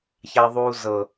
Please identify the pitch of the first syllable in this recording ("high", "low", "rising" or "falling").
high